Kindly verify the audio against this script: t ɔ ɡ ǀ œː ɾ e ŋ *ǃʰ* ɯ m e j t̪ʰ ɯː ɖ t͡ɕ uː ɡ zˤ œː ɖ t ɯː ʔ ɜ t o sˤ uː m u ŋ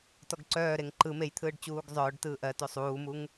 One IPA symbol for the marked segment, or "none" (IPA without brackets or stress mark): ǃ